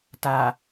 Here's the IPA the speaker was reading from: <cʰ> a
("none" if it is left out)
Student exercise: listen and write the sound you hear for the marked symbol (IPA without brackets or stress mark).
t